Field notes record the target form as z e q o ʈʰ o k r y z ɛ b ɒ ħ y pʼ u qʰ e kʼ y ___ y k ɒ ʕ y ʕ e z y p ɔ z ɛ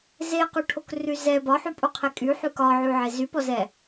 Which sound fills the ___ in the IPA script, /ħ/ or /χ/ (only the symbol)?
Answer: ħ